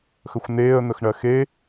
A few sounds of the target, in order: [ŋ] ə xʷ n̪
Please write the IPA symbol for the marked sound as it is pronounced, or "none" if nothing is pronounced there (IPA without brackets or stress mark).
x